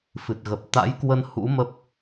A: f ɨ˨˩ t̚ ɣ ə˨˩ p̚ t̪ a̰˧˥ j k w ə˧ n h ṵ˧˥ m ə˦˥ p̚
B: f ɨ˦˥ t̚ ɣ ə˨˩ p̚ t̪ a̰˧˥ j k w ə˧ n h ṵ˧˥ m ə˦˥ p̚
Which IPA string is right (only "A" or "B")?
A